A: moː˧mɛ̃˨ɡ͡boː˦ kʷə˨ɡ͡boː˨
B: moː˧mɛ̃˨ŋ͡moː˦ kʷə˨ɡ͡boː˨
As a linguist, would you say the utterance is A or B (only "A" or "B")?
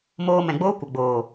A